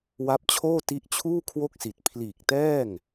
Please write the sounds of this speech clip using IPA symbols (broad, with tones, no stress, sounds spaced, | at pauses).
w a˦˥ p̚ t͡ɕʰ oː˥˩ t i˦˥ ʔ t͡ɕʰ uː˥˩ kʰ w o˥˩ k̚ s i˨˩ t̚ pʰ l iː˨˩ k̚ t ɛː˥˩ ŋ